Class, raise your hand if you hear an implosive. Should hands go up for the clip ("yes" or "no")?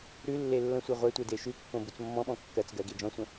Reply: yes